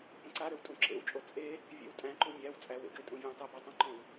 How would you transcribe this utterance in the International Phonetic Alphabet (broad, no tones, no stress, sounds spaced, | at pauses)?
p ə̃ ǀ a ɾ ø w tʼ ũ ǁ ḛ w t͡ʃʼ o t͡sʼ e | vʲ ḛ w tʼ æ̃ ǃ u mʲ æ w t͡sʼ æ w ḛ ɡ ɘ tʼ ũ vʲ æ̃ tˤ ʏ b ø tˤ ə̃ ǃ õ w